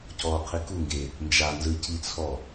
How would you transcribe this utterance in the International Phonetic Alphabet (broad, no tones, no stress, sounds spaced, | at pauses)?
c ɔː qʰ i k u ŋ ɡ e | n d͡ʒ a n z ɯ c i t͡sʰ ɔ